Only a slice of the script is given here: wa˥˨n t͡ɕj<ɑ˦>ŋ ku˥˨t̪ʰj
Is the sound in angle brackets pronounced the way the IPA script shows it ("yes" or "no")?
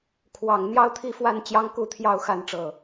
yes